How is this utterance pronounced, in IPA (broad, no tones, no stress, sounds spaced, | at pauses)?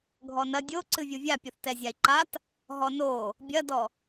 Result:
ɡʱ ɔ n ɐ dʲ o ǀ ɨ vʲ u vʲ a pʲ u θ t ɛ zʲ a i̯ ǃ a t | ɦ ɔ n o | bʲ ɐ d ɔ